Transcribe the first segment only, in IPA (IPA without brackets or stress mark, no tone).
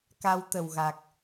k